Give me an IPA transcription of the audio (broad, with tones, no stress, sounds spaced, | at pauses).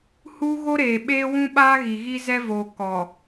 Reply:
h uː˦ ɣ o˦ ɾ eː˨ ɓ eː˦ w ũ˦ ɓ aː˦ ɣ i˨ ɣ i˦ z ɛ˦ v oː˨ k ɔ˨